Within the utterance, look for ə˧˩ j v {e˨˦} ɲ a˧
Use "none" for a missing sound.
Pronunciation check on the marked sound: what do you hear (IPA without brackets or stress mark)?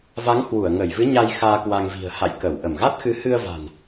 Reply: ɨ˨˦